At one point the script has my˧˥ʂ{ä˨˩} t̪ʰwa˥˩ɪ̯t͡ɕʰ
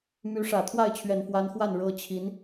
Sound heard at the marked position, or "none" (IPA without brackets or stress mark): ä˨˩